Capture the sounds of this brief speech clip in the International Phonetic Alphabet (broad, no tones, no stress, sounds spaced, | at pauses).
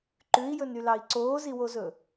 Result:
ǃ ʉ i̯ j ɵ n y l ɑ i̯ ǀ oː z i w o z ɵ